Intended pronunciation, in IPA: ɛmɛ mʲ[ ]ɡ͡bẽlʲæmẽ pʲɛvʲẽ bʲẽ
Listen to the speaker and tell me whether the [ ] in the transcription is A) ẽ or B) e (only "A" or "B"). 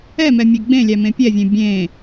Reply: B